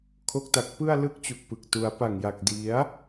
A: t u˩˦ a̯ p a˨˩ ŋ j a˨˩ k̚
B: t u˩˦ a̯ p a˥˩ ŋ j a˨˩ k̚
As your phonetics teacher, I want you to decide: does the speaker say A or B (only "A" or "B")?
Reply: A